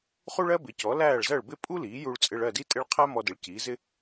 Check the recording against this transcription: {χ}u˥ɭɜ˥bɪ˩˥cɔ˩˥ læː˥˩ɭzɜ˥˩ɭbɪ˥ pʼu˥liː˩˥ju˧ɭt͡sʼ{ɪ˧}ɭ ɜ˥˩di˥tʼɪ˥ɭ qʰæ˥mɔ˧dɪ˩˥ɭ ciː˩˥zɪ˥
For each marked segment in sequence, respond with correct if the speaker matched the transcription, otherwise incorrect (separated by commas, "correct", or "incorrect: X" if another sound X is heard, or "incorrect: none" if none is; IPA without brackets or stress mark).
correct, correct